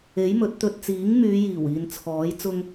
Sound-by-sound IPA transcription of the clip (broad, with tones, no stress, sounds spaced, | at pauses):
e˨˥ j m ɵ˨˥ t̚ t̪ ɵ˧ t̚ t͡s iː˨˥ ŋ m yː˨˧ j iː˨˩ w iː˨ n t͡sʰ ɔː˨˥ j t͡s ʊ˧ ŋ